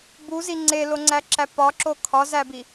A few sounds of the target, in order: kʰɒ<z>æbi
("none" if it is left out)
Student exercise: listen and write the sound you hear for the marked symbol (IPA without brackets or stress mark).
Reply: z